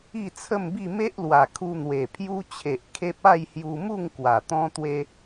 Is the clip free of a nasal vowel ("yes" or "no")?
no